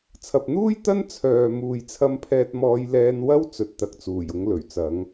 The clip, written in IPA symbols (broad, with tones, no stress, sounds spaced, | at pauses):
t͡sʰ ɐ˨ p̚ n̪ uː˥ j t̪ ɐ˥ n t͡sʰ œː˨ m uː˨ j t͡sʰ ɐ˧ m pʰ ɛː˧ t̚ m ɔː˧ j l ɛː˧ n w ɐ˥ w t͡s ɵ˨ t̚ t̪ ɐ˨ k̚ t͡s uː˨˩ j ʊ˨˧ ŋ l ɵ˨˩ ɥ t͡s ɐ˨˥ ŋ